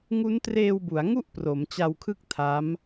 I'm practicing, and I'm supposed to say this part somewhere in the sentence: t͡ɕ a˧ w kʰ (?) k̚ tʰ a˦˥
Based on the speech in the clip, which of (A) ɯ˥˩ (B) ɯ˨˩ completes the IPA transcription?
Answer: A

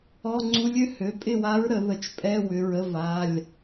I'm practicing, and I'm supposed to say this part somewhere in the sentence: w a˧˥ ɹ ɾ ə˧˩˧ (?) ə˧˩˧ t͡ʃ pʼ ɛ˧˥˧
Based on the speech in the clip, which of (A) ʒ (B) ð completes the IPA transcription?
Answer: B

